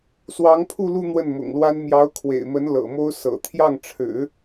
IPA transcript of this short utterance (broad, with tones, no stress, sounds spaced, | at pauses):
s w ɑ˧˥ ŋ pʰ u˥˧ l u˥˧ n̪ w ə˥˩ n m ʊ̰˨˩ ŋ l w a˥ n m j ɑ˧˥ ʊ̯ kʰ w ḛ˨˩ ɪ̯ m ə˧˥ n l ɤ̰˨˩ m o˥ ʊ̯ s ɤ̰˨˩ t̪ʰ j ɑ˥˩ ŋ ʈ͡ʂʰ ɻ̩˨˩˦